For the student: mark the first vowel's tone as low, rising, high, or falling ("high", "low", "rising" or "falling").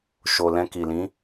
low